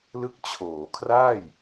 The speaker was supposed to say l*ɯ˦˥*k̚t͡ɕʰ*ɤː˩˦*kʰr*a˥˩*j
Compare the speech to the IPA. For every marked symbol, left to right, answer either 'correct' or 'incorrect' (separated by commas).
correct, incorrect, incorrect